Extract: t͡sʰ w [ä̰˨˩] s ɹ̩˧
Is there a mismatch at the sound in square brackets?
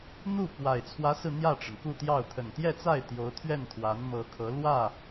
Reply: yes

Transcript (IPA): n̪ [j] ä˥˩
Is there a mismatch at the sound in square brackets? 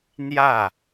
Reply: no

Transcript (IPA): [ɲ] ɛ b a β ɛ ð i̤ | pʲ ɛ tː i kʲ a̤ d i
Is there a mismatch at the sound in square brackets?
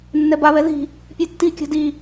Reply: yes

